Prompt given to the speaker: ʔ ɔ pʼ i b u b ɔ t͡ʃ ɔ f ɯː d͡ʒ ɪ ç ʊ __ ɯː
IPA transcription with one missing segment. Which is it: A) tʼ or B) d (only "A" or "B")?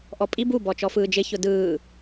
B